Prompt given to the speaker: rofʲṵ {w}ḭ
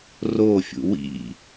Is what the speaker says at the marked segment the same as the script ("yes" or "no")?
yes